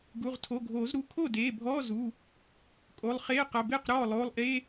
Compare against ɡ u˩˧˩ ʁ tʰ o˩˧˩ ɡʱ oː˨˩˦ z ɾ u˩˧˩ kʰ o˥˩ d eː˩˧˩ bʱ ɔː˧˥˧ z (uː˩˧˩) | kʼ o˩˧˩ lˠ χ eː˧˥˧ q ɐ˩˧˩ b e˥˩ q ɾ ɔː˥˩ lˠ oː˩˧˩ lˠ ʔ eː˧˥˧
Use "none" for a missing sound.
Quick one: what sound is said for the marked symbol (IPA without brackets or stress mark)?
uː˩˧˩